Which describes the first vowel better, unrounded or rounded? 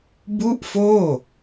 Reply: rounded